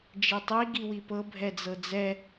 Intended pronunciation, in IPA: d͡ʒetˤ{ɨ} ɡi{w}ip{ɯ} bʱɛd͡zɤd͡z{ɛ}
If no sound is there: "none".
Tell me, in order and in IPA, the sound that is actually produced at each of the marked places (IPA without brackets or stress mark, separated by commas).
i, w, ɤ, ɛ